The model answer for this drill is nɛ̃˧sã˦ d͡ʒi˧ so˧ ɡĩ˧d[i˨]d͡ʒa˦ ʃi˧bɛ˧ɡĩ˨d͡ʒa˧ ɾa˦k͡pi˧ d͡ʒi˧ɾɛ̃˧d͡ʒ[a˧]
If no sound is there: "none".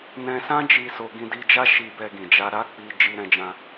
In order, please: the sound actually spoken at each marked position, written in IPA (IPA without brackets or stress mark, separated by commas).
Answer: i˧, ã˧